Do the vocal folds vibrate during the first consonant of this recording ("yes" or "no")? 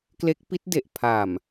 no